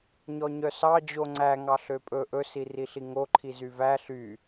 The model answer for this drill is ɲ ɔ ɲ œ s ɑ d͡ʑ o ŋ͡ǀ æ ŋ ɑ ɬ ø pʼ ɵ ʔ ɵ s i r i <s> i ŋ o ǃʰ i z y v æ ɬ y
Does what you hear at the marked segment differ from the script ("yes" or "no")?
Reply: yes